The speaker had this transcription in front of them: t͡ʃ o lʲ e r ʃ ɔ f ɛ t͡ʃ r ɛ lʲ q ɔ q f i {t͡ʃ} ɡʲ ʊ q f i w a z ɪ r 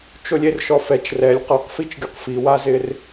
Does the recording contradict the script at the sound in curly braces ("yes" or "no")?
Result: no